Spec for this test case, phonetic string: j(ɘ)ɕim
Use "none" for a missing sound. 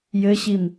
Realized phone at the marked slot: ɘ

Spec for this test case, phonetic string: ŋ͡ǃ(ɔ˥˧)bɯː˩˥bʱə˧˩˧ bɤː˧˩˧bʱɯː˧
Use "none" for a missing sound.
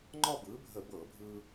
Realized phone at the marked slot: ɔ˥˧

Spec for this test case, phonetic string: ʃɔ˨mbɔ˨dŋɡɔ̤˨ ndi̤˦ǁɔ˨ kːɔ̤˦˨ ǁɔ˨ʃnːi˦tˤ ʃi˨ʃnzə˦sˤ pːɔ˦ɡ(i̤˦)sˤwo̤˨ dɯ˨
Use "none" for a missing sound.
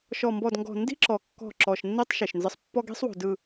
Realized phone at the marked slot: i̤˦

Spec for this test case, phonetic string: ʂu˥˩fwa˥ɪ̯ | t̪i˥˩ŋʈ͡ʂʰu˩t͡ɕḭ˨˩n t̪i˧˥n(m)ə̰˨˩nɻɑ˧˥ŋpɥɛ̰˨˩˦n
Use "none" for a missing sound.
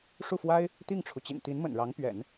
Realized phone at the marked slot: m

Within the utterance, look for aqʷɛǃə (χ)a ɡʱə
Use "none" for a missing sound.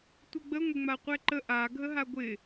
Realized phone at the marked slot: ʔ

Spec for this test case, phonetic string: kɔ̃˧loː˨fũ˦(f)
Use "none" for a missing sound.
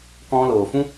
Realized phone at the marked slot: none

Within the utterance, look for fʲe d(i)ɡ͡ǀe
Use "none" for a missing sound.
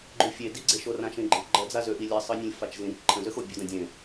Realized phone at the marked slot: i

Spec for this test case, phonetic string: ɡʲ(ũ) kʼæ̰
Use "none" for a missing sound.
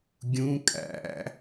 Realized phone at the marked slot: ũ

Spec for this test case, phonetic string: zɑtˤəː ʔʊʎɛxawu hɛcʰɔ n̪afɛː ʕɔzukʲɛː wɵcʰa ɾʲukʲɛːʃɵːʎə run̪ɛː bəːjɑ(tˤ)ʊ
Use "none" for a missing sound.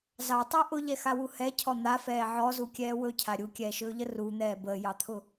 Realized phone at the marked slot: t̪ʰ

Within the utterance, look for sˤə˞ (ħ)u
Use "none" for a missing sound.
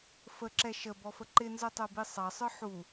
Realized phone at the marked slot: ħ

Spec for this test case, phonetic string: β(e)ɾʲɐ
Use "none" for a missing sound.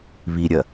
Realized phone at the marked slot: i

